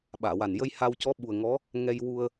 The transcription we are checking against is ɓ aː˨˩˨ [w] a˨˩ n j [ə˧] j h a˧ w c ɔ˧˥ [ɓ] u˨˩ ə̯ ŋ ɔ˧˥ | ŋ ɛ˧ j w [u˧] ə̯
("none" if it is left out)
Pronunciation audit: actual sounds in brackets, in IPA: w, ə˧, ɓ, u˧

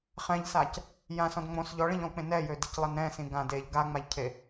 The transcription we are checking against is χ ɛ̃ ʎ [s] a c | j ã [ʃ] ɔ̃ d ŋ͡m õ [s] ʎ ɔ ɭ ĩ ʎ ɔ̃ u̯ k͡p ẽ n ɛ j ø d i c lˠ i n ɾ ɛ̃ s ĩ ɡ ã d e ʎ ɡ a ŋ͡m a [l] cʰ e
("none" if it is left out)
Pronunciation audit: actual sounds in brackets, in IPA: s, s, s, ʎ

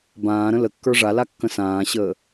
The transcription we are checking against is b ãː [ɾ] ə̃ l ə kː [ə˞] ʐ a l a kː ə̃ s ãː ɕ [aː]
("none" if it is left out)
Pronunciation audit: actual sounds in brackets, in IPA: ɾ, ə˞, əː

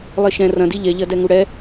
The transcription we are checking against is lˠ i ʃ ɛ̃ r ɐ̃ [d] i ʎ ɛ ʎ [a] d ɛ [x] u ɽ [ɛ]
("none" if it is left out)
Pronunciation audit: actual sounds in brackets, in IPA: d, ɐ, ŋ, ɛ

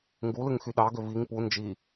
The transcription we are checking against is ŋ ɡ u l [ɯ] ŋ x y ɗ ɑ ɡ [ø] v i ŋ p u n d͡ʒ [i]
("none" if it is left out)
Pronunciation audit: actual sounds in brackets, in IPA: ɯ, ø, i

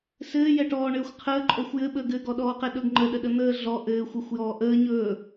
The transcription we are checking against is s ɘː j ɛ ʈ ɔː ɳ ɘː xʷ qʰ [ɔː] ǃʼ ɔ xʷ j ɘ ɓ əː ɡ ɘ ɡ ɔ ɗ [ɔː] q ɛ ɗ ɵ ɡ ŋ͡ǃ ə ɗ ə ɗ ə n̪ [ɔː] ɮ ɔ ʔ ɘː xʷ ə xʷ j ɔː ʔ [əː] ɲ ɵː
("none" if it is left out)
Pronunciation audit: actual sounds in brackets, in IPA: əː, ɔː, əː, əː

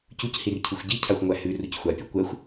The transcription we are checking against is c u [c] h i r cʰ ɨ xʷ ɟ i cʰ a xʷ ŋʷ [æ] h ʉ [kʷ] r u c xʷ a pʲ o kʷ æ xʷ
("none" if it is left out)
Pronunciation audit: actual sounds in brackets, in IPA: c, æ, none

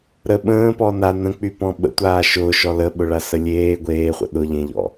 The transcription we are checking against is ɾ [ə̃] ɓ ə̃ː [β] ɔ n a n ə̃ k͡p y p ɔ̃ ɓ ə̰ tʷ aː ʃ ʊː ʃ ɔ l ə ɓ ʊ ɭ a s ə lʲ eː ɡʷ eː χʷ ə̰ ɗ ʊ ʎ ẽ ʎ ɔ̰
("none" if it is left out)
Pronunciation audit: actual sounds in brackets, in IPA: ə, p

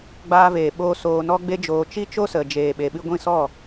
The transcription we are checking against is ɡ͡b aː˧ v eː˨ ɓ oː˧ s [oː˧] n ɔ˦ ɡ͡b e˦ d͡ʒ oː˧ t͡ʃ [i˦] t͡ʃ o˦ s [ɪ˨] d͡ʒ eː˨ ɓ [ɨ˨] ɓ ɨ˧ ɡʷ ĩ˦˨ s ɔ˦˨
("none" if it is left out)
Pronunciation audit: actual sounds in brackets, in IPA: oː˧, i˦, ə˨, e˨

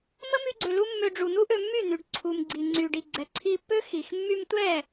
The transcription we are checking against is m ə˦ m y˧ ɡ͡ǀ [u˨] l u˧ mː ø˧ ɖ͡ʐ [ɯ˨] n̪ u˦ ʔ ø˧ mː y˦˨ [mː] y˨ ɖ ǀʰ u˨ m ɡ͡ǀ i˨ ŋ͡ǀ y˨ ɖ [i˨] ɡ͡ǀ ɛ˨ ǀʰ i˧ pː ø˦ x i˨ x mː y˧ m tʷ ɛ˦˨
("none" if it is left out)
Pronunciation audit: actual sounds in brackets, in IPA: ø˨, u˨, n̪, i˨

